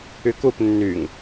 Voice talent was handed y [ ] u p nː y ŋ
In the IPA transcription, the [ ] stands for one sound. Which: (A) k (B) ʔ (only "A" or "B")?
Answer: A